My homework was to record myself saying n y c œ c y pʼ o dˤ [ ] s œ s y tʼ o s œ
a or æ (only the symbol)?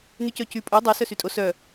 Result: æ